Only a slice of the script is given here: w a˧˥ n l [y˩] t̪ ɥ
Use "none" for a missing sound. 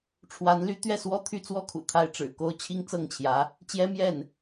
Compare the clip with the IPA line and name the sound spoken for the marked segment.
y˧˥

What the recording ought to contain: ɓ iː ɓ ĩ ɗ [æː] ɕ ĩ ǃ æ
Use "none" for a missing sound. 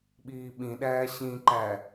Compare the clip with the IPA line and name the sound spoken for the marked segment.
æː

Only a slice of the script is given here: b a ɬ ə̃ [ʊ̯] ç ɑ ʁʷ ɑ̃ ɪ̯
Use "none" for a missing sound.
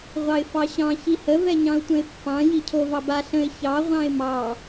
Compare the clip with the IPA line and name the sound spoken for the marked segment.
ɪ̯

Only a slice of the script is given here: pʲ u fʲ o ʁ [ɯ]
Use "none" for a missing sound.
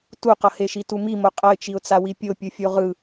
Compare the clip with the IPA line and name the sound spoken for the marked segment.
ɯ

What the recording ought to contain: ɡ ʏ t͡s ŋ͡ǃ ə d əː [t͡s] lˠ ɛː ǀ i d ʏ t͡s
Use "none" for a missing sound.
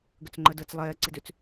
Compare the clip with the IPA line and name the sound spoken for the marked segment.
t͡s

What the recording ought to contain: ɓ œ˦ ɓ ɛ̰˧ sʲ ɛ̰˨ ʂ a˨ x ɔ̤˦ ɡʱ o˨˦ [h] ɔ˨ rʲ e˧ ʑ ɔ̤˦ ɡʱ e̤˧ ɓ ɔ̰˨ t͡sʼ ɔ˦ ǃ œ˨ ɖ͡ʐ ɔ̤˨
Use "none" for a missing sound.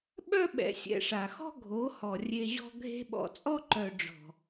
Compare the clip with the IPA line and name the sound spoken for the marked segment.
h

